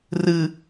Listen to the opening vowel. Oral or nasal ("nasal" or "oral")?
oral